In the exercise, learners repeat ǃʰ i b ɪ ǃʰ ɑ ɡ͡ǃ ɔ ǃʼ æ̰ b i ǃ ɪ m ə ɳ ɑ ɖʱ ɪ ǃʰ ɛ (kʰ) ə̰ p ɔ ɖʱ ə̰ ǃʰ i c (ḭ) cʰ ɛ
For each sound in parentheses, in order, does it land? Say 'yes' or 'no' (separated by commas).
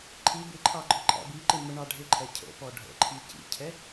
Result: no, yes